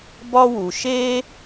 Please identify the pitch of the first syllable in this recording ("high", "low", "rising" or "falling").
high